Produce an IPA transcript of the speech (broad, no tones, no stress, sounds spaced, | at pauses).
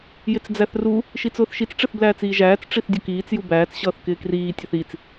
j ɪ t͡s d͡z æ θ r u | ʃ i t͡s ʊː θ ʃ i t͡s ʈ͡ʂ ɪ θ b l æː t͡s iː ʒ æː t͡s ʈ͡ʂ i θ dʲ ʊ k iː t͡s j u b æː t͡s ɕ ʌː θ k ɪː k r iː tʲ æ θ i t͡s